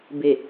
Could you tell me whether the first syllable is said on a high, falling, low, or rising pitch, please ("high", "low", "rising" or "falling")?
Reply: low